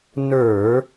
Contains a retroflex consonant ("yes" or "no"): no